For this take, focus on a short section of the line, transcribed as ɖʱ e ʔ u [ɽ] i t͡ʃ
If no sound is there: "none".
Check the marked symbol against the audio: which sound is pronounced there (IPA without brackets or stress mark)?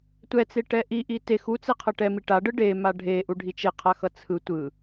ɖʱ